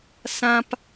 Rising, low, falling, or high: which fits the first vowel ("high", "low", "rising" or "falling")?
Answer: high